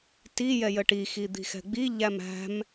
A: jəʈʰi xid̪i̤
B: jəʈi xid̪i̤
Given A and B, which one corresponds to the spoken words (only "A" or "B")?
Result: B